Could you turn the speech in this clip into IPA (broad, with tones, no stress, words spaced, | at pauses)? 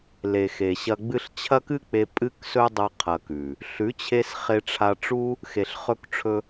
le˨xe˨ɕɐ˧ɡ͡bɨ˦ɬ t͡ɕʰɐ˦kɨ˦k͡pe˧ pʼɨ˦ksɵ˦ dˤɐ˦ qʰɐ˧kʉ˨ | ɬʉ˨˦t͡ɕʰe˧s χe˧ʈ͡ʂʰa˧ʈ͡ʂu˦ | xe˨ɬχɵ˧k ʈ͡ʂʰɵ˦